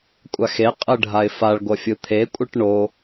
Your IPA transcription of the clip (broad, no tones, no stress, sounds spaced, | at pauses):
kʷʼ a x e qʼ ɯ ɖʱ a ɪ̯ f a ɭ ɡʷ ʌ fʲ ɯ t̪ʰ e kʷʼ ɯ ʈ ɳ o